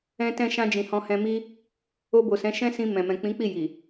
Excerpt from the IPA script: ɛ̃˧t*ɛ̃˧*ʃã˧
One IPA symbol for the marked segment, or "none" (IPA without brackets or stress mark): ɛ̃˧